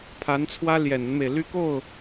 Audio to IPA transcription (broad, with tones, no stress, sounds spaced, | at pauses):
pʰ a˧˥ n t͡sʰ w ä˥ l j ɛ˨˩ n ə˦ n m e˩ ɪ̯ l y˥˧ k o˥˩ ʊ̯